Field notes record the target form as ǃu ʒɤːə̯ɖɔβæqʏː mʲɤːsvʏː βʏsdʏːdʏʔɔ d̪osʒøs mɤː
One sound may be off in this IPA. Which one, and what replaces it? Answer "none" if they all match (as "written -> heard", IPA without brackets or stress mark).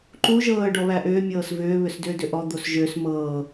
q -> ʔ